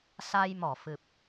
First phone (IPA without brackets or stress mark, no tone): s